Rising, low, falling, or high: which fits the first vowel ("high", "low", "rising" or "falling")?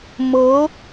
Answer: rising